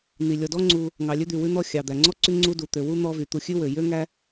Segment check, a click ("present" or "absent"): present